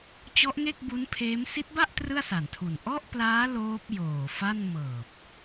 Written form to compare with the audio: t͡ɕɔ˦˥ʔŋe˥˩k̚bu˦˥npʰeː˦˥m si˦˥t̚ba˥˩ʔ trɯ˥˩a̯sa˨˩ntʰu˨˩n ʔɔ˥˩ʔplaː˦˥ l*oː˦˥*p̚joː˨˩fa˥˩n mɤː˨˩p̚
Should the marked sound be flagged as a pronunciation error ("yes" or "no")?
no